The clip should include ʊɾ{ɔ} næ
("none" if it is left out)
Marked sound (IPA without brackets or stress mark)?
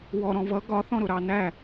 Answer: ɑ